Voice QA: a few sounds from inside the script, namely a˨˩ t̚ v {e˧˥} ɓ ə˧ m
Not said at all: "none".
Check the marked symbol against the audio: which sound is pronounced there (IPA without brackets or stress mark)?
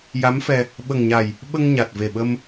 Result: e˨˩